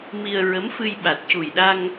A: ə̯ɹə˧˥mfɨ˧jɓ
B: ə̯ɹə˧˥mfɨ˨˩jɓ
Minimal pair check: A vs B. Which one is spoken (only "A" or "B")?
A